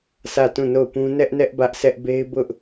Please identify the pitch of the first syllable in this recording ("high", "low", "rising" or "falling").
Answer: falling